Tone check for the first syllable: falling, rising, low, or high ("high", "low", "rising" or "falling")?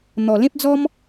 low